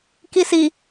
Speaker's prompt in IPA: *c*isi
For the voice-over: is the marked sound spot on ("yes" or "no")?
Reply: no